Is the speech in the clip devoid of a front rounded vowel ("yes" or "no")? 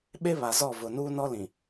yes